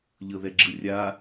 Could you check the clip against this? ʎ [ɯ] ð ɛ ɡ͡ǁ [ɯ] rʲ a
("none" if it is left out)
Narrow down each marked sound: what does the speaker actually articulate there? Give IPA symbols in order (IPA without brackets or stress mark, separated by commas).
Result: ɤ, ɯ